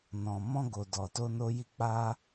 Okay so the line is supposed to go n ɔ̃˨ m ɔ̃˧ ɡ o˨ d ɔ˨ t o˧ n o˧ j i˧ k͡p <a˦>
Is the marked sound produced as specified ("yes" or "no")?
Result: no